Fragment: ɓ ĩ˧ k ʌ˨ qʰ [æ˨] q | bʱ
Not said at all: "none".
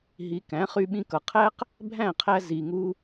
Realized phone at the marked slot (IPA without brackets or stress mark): æ˦